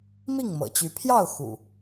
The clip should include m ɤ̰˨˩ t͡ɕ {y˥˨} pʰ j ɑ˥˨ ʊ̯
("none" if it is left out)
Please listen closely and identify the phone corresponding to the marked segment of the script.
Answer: y˨˦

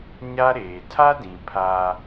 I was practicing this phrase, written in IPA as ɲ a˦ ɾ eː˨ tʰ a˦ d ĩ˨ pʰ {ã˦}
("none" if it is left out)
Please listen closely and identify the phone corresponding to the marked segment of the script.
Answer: a˦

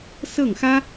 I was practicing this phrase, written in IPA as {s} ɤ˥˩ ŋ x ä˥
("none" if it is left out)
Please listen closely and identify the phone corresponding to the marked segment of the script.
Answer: s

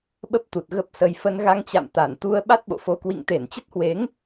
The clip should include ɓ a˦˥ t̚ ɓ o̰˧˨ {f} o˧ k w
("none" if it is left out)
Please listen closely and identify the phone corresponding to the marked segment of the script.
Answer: f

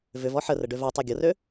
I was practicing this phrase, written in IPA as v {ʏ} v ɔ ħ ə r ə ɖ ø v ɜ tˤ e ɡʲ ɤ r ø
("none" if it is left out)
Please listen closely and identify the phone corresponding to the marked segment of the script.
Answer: ʏ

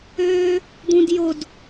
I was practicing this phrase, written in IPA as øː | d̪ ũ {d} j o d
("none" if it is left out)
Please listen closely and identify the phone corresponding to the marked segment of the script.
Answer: d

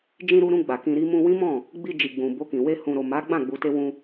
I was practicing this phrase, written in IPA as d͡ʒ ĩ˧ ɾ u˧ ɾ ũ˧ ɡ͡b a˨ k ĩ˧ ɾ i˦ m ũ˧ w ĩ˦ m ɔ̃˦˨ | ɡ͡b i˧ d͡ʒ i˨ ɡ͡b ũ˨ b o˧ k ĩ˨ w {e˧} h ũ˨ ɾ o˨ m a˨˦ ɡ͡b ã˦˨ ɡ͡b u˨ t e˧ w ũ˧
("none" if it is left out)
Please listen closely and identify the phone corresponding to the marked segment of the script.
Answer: e˧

